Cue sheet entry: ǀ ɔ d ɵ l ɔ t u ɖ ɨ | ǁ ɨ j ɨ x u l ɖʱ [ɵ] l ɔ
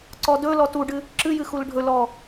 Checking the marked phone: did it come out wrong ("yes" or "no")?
no